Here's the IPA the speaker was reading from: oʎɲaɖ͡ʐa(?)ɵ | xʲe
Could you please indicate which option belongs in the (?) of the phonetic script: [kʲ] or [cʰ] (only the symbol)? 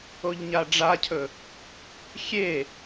cʰ